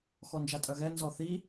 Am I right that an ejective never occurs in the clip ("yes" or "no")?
no